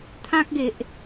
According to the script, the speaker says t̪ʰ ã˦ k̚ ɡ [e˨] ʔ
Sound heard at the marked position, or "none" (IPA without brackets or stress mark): e˨